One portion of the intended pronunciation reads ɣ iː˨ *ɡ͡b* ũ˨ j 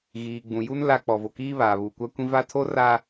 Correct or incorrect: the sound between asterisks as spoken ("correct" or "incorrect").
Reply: correct